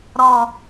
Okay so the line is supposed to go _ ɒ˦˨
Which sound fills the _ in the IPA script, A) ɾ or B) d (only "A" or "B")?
A